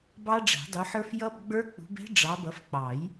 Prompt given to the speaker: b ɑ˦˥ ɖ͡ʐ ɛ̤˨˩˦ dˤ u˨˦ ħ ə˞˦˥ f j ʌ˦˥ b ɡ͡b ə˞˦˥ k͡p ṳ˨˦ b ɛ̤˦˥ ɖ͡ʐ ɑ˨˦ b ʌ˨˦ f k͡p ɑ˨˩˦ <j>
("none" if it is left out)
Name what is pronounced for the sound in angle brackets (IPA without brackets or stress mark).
j